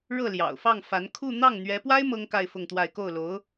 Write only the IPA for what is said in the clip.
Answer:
ɻ ɤ˥˩ l j ɑ̰˨˩ ʊ̯ f ɑ˥˩ ŋ f a˧˥ n kʰ u˥˧ n̪ ɑ˥˩ ŋ n̪ ɥ ɛ˧˥ p w a˥ ɪ̯ m ɤ˥ ŋ k a˥˧ ɪ̯ f ʊ˥˧ ŋ t̪ w a˥˧ ɪ̯ k o˥˩ ʊ̯ l o˧˥ ʊ̯

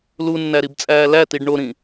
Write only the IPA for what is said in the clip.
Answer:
l u nː æ ɾ i b t͡sʼ æː l æ t i ɖ ɳ o ɾ ĩ

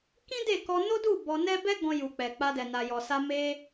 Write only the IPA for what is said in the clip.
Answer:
k ĩ˦ d e˦˨ k ɔ˧ n o˦ d u˦˨ b ɔ˧ n ɛ˦ b ɛ˦ ɡ ɔ̃˧ j u˨ k͡p ɛ˨ k͡p a˧ d ɛ˨ n a˨ j ɔ˨ s a˧ m e˧

